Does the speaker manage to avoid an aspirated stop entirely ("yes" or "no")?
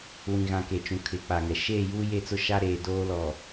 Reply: no